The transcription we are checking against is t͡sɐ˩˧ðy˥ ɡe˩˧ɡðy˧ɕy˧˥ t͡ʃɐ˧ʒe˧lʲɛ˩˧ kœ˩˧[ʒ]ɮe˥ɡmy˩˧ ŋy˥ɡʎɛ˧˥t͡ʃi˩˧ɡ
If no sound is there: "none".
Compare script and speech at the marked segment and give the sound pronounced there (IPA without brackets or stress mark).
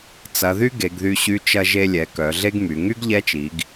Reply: none